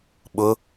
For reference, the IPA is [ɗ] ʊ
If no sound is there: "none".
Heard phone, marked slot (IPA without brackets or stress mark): ɓ